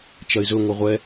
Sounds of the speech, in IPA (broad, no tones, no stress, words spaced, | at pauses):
t͡ʃɐɪ̯zɵ ŋʷɛʁʷɛ